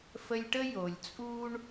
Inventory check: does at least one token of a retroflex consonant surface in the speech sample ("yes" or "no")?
yes